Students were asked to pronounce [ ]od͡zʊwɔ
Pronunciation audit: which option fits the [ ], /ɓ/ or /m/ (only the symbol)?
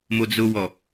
m